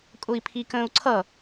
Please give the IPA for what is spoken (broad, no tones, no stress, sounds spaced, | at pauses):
kʼ ʊ i̯ pʰ i k ə̃ː u̯ ǀʰ ʌ